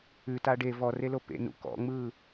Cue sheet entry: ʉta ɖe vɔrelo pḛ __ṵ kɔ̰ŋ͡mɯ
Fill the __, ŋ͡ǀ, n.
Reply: n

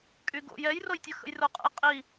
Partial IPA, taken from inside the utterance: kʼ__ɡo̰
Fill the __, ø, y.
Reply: y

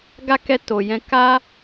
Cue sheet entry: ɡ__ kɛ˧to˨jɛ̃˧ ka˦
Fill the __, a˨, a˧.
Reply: a˧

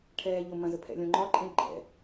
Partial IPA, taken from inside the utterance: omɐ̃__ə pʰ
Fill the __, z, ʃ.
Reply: z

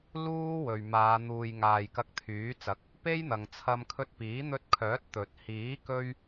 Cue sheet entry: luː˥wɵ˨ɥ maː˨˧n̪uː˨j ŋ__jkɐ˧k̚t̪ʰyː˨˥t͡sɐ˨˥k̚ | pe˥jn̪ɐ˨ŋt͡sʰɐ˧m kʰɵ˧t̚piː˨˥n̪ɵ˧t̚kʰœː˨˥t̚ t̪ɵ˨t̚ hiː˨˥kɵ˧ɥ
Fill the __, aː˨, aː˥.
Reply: aː˨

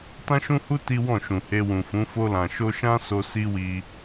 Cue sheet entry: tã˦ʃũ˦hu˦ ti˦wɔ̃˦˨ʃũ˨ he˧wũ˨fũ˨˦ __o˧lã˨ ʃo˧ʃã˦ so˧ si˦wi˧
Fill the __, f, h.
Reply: f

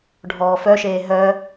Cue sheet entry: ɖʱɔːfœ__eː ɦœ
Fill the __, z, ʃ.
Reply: ʃ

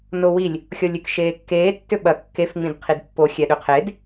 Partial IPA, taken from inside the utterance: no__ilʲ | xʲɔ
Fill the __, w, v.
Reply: w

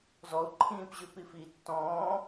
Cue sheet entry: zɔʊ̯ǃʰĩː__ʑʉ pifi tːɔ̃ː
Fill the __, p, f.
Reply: p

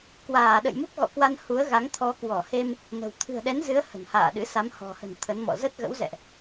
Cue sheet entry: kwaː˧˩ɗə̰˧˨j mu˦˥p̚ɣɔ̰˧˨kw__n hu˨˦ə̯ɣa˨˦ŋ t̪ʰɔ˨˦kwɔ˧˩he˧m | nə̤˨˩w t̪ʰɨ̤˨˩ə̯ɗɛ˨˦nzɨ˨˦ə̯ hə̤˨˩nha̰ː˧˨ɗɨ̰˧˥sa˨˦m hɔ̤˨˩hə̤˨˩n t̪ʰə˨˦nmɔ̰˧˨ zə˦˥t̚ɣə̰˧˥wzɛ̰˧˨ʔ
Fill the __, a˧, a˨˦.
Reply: a˧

